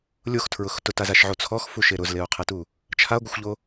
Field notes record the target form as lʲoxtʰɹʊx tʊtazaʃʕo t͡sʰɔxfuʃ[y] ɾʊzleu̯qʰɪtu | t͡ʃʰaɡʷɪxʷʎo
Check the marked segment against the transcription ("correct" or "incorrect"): incorrect